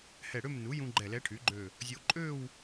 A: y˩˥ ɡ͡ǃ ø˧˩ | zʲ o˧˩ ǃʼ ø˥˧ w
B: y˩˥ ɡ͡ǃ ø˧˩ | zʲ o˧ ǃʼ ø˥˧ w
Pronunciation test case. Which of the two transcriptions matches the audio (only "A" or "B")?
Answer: B